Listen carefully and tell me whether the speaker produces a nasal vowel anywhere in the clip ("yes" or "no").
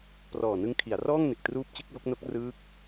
no